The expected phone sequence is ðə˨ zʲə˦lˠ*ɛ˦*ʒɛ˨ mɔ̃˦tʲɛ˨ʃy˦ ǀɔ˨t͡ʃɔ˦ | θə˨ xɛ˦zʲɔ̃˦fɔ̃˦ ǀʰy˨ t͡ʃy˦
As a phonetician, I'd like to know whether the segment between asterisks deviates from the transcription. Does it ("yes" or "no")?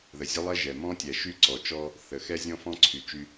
no